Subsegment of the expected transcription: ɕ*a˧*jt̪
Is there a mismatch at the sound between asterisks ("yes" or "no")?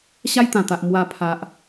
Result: yes